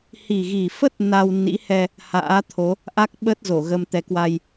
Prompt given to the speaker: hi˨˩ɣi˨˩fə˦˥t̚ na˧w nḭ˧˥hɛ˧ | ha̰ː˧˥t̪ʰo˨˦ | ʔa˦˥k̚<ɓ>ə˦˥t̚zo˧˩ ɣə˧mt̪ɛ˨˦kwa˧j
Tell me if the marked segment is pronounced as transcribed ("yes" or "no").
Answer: yes